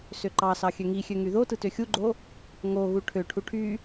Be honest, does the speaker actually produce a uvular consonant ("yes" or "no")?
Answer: no